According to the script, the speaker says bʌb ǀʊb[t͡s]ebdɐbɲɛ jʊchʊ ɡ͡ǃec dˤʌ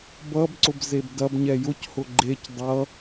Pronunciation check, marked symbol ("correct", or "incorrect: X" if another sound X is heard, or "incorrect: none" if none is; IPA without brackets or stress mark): incorrect: z